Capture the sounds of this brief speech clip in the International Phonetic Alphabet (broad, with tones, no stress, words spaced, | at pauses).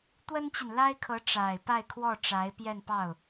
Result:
t̪wə˥nt͡ɕi˨nla˥ɪ̯kʰɤ˧˥ ʈ͡ʂa˨˩ɪ̯ pa˥˧ɪ̯ kʰwɔ˥˩ ʈ͡ʂa˧˥ɪ̯pjɛ˥˧npɑ˥˩ʊ̯